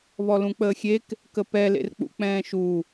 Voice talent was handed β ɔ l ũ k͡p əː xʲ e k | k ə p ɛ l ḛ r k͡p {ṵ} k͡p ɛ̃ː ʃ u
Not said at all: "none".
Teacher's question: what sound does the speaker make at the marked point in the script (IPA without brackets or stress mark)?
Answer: ṵ